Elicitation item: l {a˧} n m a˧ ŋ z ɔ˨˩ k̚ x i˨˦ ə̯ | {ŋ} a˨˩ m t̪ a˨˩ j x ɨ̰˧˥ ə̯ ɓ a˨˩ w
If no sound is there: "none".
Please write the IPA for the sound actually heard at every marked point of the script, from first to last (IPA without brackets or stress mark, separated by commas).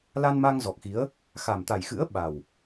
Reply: a˧, x